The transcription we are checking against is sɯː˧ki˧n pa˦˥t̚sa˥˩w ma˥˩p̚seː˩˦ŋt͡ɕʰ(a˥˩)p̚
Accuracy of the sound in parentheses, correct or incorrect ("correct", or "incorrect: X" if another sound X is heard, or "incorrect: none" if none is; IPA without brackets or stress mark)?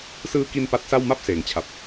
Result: incorrect: a˨˩